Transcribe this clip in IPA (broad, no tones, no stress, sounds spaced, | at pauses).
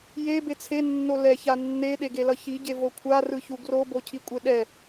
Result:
j e b e t͡sʰ e nː o l ɛ ç a nː e ɗ e ɡ e l ʌ ç i ɟ e v o kʷʰ a r ɯ ç u ɡ r o b o cʰ i kʷʼ e ɗ ɛ